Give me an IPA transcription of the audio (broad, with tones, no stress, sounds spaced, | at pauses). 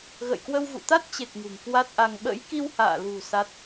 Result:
ɣ ə̰˧˨ j k w ə˧ w v ṵ˧˨ t̪ a˦˥ t̚ t͡ɕ e˨˩ k̚ ŋ ṳ˨˩ ŋ k w a˦˥ t̚ ʔ a˧ ŋ ɓ ə̰˧˥ j k i˧ w h a̰ː˧˨ l ṳ˨˩ s a˦˥ t̚